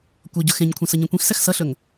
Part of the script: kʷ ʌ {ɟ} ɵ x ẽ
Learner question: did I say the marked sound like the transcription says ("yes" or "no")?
yes